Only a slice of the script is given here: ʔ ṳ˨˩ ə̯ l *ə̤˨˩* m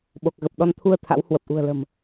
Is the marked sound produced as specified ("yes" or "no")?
yes